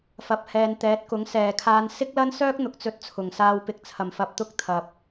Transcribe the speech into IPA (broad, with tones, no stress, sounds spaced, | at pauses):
f ɐ˨ p̚ h ɛː˨ n t̪ ɛː˨˥ t̚ k ʊ˨˥ ŋ s ɛː˨˩ kʰ aː˨˧ n s ɪ˥ k̚ l ɐ˥ n s œː˥ k̚ n̪ ʊ˨ k̚ t͡s ɵ˧ t̚ t͡sʰ ʊ˨˩ ŋ s aː˨ w p ɪ˨˥ k̚ t͡sʰ ɐ˨˩ m f ɐ˧ p̚ t̪ ʊ˥ k̚ t̪ʰ ɐ˨ p̚